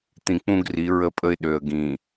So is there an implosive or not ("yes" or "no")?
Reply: yes